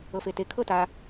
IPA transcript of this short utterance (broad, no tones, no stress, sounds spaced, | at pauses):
ɤ f e t e kʰ ɤ t a